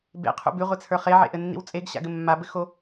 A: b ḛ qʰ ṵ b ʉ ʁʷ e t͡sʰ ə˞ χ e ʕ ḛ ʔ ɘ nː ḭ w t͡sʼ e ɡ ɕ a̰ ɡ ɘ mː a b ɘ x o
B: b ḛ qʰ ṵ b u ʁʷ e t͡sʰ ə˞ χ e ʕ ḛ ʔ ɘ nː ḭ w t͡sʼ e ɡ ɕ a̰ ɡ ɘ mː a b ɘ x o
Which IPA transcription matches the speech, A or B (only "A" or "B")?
A